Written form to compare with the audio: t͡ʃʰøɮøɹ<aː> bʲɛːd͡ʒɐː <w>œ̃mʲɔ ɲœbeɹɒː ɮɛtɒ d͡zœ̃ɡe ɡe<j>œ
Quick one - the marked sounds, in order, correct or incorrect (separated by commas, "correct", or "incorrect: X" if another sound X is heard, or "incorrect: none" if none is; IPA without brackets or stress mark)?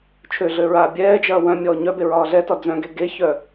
correct, correct, incorrect: ç